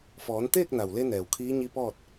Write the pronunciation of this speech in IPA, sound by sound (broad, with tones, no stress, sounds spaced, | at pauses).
f ɔː˩˧ n t̪ eː˥˨ k̚ n a˩ w l e˧ n ɛː˩ w kʰ iː˧˥ ɲ i˧˥ p ɔː˥˨ t̚